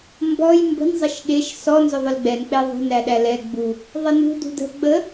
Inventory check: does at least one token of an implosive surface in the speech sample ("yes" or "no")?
yes